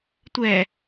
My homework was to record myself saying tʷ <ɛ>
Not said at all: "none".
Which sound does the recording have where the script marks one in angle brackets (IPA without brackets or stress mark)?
ɛ